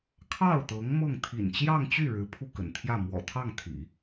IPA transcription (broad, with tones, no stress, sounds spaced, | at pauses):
kʰ ɑ˥˩ ʊ̯ t̪ ɤ˧˥ ŋ m ɤ˥˩ ŋ t̪ʰ ḭ˨˩ n t͡ɕ j ɑ˥˧ ŋ t͡ɕ y˥˩ ɻ ɻ̩˧˥ pʰ u˥˩ k ə̰˨˩ n t̪ʰ j ä˥˩ m w ɔ̰˨˩ t̪ʰ ɑ˥˩ ŋ t̪ʰ ḭ˨˩˦